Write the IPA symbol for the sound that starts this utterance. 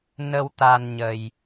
n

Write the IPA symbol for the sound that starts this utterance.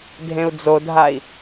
dʱ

